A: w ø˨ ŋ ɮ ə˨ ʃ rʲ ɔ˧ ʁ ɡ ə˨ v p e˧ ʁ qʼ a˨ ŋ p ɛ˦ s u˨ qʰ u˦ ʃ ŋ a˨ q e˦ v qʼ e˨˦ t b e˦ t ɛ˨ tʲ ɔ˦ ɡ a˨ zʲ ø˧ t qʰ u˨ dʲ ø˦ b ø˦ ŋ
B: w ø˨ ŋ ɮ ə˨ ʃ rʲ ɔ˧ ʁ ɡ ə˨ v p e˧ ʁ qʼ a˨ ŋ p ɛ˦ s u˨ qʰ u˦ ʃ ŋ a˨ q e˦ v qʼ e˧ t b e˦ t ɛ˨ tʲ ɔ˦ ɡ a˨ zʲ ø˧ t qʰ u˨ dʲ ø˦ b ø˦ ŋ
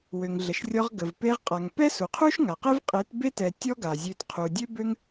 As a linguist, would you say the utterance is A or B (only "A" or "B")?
A